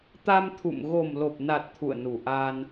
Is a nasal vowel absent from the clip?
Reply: yes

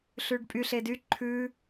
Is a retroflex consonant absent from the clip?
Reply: no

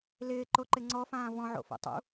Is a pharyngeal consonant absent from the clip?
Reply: no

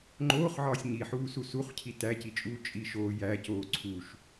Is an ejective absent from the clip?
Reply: no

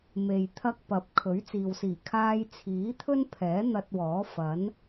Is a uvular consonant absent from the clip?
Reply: yes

